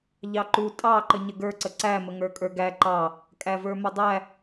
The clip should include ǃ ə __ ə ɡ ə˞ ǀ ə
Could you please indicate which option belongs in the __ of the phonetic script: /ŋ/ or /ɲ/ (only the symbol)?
ɲ